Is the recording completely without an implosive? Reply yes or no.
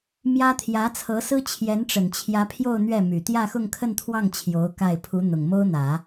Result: yes